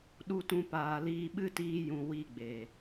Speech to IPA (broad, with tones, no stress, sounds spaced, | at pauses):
ɗ u˦ t ũ˦ p aː˧ l iː˦ ɓ ɨ˦ t iː˧ j ũ˨ w i˦˨ ɡ͡b eː˨